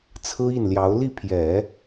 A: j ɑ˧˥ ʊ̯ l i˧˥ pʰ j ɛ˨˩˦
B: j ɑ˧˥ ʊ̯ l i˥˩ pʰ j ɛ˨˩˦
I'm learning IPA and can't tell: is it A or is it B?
B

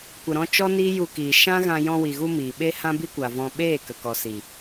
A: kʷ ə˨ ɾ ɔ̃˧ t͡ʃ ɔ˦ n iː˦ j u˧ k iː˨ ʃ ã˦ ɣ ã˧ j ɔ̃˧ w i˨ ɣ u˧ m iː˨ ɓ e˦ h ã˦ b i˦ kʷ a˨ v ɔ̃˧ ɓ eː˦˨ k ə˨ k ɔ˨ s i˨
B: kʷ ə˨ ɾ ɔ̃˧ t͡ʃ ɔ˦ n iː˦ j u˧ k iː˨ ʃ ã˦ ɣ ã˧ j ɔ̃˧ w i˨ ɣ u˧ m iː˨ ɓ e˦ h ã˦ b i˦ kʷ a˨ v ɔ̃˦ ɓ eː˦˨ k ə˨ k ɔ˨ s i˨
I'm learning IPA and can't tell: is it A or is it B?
A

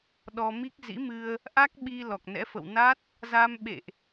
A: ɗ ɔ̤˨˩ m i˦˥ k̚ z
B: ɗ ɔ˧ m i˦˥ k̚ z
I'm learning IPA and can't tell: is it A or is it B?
B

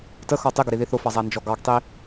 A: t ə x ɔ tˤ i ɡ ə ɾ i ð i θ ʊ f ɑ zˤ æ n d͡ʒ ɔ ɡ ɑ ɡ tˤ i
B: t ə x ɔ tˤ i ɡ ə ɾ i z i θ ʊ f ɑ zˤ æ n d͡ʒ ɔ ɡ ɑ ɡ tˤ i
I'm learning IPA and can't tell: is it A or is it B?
A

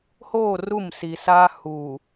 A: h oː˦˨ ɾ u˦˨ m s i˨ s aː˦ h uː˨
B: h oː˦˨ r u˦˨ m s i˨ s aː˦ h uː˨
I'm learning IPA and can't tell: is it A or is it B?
B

